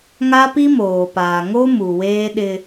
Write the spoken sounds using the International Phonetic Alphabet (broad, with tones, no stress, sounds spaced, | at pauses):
ŋ a˦ p i˦ m oː˨ p aː˨ ŋ o˦ m u˨ w eː˦ ɗ ɪ˦